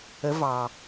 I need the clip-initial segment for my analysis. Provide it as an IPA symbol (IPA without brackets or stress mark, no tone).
ə